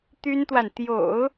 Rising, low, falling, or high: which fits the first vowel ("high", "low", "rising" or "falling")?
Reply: high